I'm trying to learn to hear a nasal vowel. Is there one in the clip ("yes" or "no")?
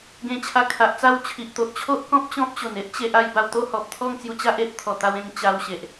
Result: yes